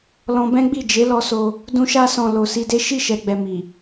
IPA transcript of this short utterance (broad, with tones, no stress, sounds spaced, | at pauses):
l ɔ̃˧ b ɛ̃˦ ɡ͡b i˦˨ d͡ʒ e˨˦ l ɔ˧ s o˧ | d ũ˧ ʃ a˧ s ɔ̃˨ l o˨ s i˧ d e˦ ʃ i˦˨ ʃ ɛ˨ ɡ͡b ɛ˨ m i˨